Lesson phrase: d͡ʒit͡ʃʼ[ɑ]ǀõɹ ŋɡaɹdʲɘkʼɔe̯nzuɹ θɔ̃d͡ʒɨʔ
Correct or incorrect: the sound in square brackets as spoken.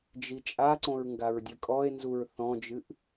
incorrect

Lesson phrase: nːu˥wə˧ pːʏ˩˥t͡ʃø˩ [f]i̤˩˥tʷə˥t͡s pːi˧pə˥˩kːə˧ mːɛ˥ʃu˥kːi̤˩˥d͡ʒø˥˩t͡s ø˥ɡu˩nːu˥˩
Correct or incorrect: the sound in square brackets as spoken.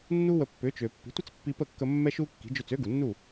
incorrect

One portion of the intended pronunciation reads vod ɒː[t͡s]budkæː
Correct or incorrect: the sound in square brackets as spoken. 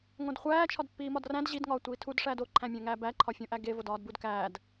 incorrect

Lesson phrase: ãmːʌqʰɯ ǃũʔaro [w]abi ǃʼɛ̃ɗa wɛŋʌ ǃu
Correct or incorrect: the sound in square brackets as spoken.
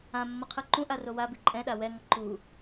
correct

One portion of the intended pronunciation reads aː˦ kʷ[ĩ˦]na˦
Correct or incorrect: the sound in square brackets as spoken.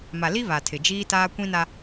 correct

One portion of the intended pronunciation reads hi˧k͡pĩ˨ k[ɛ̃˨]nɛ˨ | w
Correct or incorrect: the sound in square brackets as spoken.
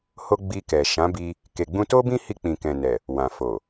correct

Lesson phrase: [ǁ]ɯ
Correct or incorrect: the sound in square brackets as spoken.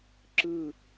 correct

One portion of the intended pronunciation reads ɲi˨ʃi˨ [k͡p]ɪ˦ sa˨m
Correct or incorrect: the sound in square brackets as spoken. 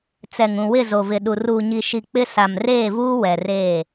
correct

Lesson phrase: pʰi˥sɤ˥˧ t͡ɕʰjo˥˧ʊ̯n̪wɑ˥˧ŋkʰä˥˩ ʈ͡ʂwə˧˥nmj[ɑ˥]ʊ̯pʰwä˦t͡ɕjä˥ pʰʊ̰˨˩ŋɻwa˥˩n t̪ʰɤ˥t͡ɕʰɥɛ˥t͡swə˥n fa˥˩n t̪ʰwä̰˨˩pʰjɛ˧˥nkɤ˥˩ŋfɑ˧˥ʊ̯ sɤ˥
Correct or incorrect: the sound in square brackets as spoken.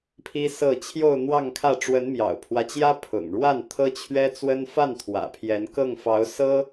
incorrect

